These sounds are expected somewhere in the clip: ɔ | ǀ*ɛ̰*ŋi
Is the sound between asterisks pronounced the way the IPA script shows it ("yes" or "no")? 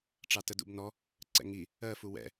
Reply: yes